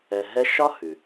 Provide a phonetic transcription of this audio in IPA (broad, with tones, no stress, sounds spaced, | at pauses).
ɛ˧ ɦ ɛ˥ ʃ ɒ˥ h ʉ˩